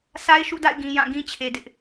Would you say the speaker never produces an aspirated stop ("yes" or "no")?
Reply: no